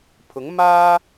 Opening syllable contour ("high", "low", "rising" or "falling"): rising